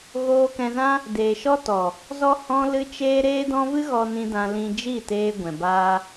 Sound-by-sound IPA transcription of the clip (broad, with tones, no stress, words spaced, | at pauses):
ɣoː˧kɛ̃˧zã˦ | deː˨ʃɔ˦tɔ˨ | zɔ˦hɔ̃˦ lɨ˦t͡ʃeː˦ ɾeː˦dɔ̃˦ vɨ˦ɣɔ˧nĩ˧ dã˧ lĩ˧d͡ʒi˦˨teː˧ ɡʷɛ̃˨baː˦